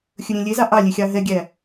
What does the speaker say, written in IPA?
xʲ ɵ ɾʲ ẽ lʲ e z ɑ ʔ ɑ lʲ e xʲ ɑ ɦ ɛ ɡʲ æ

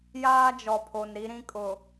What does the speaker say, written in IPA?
j aː˦ d͡ʒ ɔ˨ pʰ o˨ n ɾ i˦ ɾ ĩ˦ kʼ ʊ˨

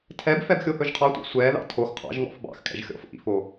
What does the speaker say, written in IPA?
tʰ ɛ b f ɛ b xʲ o h ɵ ʒ qʰ ɑ tʷ ɑ̰ sʷ ɛ ð ɑ̰ tʰ o x qʰ ɑ̰ ʒ ŋ ɔ̰ f b ɑ̰ x kʼ ɛ̰ ʒ xʲ ɔ̰ f ʔ ḭ f o

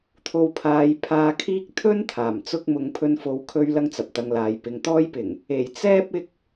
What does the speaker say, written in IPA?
t̪ʰ o˧ w pʰ aː˨˧ j pʰ aː˧ kʰ iː˥ k̚ t̪ʰ ɵ˥ n t̪ʰ aː˨˩ m t͡s ʊ˥ k̚ m ʊ˧ ŋ pʰ ɵ˧ n f o˨˧ w kʰ ɵ˧ ɥ l ɐ˥ ŋ t͡s ɐ˨ p̚ t̪ ɐ˧ ŋ l aː˨˧ j p ɪ˨˧ ŋ t̪ ɔː˥ j p ɪ˨˩ ŋ | e˨˩ j t͡s ɛː˥ p̚ ɪ˧ k̚

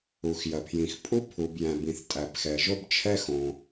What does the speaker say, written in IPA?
u˩ x j ɐ˩ pʰ j ĩ˩ x pʼ u˥ pʰ u˩ b j æ̃˩ b ĩ˩ θ tʼ æ˩ p x ɛ˩ ʒ o˥ b t͡ʃʰ ɛ˥ x õ˩

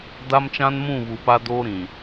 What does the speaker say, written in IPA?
d a˦ m t͡ʃ ã˦ n m ũ˦˨ β u˨ p a˦ d oː˦ ɾ ĩ˨

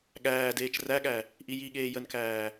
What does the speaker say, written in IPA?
ɠ æː d eː t͡ʃ r æ ɠ æ | ʔ i j i ɠ eː j ə n k æː

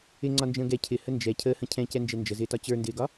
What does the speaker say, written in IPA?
ɪ ŋ͡ǀ ɒ n d͡ʒ ə̃ː ɡ ɛ cʰ ɪ h ə n d͡ʒ ɛ cʰ əː h ə̃ cʰ ɛ̃ c ɛ n d͡ʒ ɛ n d͡ʒ ə z ɪː t ɒ t͡ɕ ə˞ n d ɪː ɡ ɒ

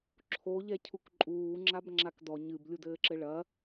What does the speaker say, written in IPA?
ǁʰ o ʎ ɛ cʰ u k ǃʼ uː ŋ͡ǁ a b ŋ͡ǁ a k d ɔ ɲ ɨ b lʲ u d ɘː ǁ ɘ ɭ ɐ

